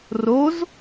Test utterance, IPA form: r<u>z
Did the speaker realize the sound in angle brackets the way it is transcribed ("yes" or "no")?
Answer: no